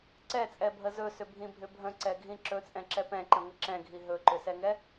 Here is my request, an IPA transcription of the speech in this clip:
ǀɛt͡sʼɛbʱə zɵsʏbʱĩbʱʏ bʱə̃ǀɛɡʱĩ ǁɵt͡sʼɛ̃ǁɛ pɛ̃ǃə̃ŋə ǁɛ̃ɡʱi ɦɵǃʏsɛŋɛ

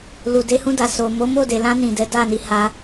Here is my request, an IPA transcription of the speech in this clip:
lu˨ de˧hũ˧da˨ so˨mo˨˦mo˦˨de˨ lã˧nĩ˨ dɛ˨˦ da˦˨ni˨˦ha˧

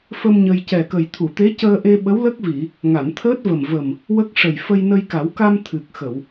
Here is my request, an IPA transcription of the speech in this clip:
fə˧m ɲə˧j cɛ˨˩kə˨˩jt̪ʰu˨˩˨t̪e˧˥ cəː˧ʔe˧ ɓə˧˥wlə˦˥k̚vi˨˩˨ | ŋa˨˩˨nt̪ʰəː˦˥t̚və˨˩m və˨˩m | wə˦˥k̚ʂə˨˩j fə˧jnə˧jka˨˩˦wka˧m t̪ʰɨ˨˩k̚ xə˨˩˨w

